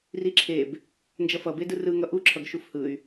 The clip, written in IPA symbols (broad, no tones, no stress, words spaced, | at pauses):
riǁʰeb | nd͡ʒʌfʌbedɯ rɯ ŋʌʔuǁʰʌɡ ʃufhɯy̯